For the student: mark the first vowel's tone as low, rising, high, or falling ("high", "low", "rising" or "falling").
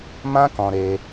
high